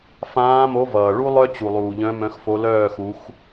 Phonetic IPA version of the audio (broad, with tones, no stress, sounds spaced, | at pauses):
f ãː˨˦ m o˨˦ v ʌː˩ ɭ u˦ lˠ œ˦ t͡ɕ u˩ lˠ uː˩ ʎ œ̃˨˦ m œ̃˨˦ x f o˨˦ l œː˥˨ x u˨˦ x